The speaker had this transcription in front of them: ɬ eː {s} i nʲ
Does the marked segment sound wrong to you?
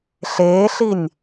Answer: yes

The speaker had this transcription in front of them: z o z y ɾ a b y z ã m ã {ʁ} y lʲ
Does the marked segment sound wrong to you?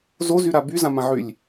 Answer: yes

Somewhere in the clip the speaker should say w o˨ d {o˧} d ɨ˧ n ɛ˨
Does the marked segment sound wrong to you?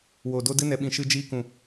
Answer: no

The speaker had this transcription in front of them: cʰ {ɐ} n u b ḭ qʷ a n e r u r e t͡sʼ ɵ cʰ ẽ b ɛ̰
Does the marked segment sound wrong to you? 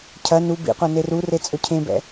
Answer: no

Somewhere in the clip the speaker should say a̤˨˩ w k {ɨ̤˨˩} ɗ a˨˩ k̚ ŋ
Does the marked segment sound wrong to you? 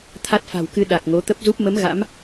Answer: yes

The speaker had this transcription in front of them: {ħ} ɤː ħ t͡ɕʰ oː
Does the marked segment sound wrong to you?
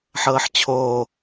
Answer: no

